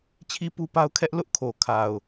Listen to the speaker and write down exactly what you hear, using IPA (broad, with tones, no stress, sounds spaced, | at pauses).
t͡ɕʰ i˦ p u˦ p a˦ ʊ̯ kʰ ɛ˦ ʔ l ʊ˦ ʔ kʰ o˨ kʰ a˨ ʊ̯